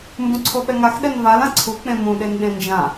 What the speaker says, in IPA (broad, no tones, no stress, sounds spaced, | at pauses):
m b ũ ǀʰ o ɓ ɛ ŋ a x ɗ ɛ n v a l ã ǀʰ u k͡p ẽ m ũ ɗ e n ɗ ẽ n d͡ʒ ã